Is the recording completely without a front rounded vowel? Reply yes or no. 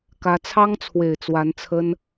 yes